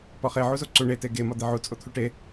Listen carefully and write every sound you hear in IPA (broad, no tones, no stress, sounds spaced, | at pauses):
p ɒ χ e ʕ u z o ǀ u ɳ e t e ɡ e m ɒ d̪ e ʕ u t͡sʼ o t̪ʰ u ʈ e